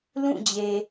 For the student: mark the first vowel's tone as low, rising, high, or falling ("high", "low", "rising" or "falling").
falling